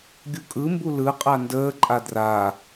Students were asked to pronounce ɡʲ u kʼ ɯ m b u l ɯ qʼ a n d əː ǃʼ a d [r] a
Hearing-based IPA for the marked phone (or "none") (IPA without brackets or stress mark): r